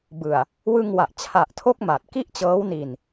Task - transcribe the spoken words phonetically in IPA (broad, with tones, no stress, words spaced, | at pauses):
bɯ˨˩a̯ | wɯ˧ŋwa˨˩ʔt͡ɕʰa˨˩ʔtʰo˦˥k̚ ma˨˩t̚ki˥˩ʔt͡ɕɤː˦˥wni˧n